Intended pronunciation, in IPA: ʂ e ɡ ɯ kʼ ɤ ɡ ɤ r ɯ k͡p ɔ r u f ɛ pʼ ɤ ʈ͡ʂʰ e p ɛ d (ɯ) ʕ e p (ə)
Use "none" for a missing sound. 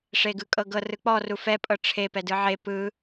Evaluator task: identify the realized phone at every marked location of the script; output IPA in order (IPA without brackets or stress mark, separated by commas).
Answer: ɯ, ɯ